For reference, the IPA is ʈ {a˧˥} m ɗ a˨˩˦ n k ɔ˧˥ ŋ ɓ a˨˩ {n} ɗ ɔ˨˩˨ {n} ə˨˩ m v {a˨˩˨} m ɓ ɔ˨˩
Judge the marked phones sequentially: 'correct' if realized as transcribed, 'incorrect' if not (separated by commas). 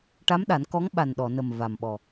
correct, correct, correct, incorrect